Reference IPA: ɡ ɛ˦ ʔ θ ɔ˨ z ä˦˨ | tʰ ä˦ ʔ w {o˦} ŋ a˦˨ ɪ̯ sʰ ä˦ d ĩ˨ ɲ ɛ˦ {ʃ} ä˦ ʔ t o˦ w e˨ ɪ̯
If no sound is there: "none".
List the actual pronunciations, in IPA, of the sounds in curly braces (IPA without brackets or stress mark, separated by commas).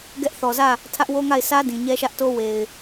o˦, ʃ